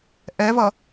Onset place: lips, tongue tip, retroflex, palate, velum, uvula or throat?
throat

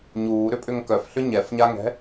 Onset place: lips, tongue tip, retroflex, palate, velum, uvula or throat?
palate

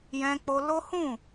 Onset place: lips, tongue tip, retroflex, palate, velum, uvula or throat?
palate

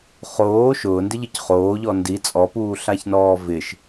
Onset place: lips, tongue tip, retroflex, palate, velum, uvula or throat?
uvula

